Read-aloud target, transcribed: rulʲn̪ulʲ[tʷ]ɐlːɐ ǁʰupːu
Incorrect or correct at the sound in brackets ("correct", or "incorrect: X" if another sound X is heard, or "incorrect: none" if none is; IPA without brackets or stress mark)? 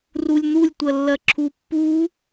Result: correct